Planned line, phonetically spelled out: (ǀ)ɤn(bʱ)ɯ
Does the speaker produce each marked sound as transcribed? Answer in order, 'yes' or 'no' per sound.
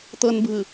no, yes

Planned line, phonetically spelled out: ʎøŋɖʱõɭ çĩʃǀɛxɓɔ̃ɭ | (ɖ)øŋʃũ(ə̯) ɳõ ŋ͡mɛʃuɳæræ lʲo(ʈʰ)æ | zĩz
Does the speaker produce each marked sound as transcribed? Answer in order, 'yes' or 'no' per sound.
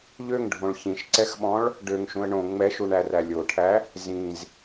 yes, yes, yes

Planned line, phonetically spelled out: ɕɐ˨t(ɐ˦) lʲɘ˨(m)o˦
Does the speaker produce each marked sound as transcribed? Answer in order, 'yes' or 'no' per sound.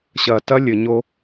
yes, no

